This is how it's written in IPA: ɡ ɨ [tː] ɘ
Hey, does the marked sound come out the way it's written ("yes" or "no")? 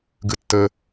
yes